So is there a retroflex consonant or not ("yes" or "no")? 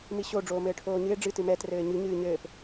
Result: yes